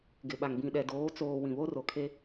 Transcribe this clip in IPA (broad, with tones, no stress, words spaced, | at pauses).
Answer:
ɡɪ˨ɓa˨ŋ bĩ˨ɗɛ˨doː˨˦ t͡soː˨ wĩ˨βo˦ro˨kʰe˦